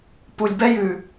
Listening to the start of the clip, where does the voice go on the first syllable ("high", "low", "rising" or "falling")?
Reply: low